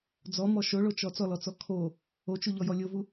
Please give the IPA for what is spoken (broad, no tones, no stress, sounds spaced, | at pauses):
d͡z ɔ m ɔ ʃ o ɭ o t͡ʃ ɔ t͡s ɔ l ɔ t͡s ɔ kʰ o | o t͡ʃ u ʎ ɔ j ɔ lʲ o v u